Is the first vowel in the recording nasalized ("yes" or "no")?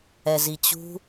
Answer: no